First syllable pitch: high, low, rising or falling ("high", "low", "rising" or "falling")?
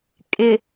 low